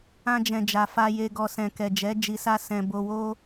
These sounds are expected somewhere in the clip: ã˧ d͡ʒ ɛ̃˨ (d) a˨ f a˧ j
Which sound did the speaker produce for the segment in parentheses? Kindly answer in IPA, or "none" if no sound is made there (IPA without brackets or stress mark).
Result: d͡ʒ